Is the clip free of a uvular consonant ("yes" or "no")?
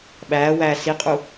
no